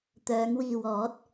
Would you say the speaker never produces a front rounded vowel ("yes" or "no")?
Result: no